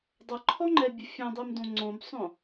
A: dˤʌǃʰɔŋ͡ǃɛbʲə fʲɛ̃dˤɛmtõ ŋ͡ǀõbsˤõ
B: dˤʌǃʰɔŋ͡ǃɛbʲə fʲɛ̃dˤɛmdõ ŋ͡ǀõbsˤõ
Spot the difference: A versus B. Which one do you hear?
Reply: B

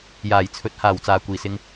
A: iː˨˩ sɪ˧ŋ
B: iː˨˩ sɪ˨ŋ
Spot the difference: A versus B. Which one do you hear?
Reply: B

